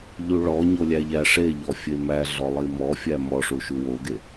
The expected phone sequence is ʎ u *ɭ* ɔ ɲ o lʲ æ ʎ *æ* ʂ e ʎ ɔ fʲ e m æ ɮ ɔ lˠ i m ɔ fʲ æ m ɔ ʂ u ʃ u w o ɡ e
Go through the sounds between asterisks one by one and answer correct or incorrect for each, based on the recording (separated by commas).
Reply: correct, correct